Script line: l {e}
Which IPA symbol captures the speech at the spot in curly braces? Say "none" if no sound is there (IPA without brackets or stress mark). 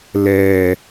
ɛ